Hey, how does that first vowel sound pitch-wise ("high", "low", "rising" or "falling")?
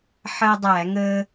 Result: high